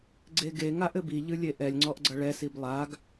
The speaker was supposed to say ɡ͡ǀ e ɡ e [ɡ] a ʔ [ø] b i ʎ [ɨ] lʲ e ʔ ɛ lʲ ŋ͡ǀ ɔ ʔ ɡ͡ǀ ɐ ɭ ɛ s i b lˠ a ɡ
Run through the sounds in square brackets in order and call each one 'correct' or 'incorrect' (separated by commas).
incorrect, incorrect, correct